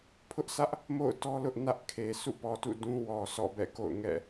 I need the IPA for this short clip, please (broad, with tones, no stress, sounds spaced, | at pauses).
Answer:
pʰ ʊ˦ ʔ sʰ ä˦ ʔ | m o̰˦˨ ʊ̯ t ɔ˦ l ʊ˦ ʔ n ä˦ ʔ kʰ e˨ sʰ ṵ˦˨ p ɔ˨ t ṵ˦˨ d ũ˦ w ɔ˨ sʰ ɔ̰˦˨ b ɛ̰˦˨ k o̰˦˨ ʊ̯ ŋ ɛ̰˦˨